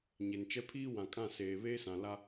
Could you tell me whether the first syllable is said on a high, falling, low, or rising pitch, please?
low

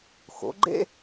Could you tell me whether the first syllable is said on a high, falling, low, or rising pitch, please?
rising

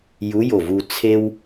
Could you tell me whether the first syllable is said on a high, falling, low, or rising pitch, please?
rising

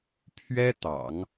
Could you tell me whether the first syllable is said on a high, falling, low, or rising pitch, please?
high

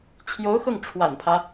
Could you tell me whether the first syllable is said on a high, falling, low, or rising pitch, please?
rising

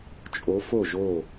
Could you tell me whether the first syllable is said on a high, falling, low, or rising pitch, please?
rising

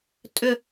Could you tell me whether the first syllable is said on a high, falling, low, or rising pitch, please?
falling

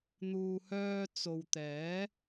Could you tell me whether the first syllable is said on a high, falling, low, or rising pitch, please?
low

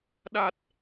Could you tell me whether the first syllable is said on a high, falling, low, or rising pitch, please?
low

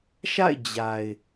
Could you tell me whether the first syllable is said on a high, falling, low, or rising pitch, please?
falling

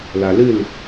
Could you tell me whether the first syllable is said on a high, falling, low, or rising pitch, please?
low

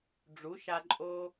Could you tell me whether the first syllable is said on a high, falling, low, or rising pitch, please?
rising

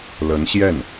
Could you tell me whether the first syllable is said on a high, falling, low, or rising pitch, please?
rising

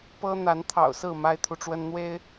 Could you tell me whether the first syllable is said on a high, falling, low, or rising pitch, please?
high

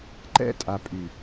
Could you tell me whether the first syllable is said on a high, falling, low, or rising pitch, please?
falling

